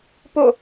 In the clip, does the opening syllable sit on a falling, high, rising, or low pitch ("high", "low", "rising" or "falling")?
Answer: falling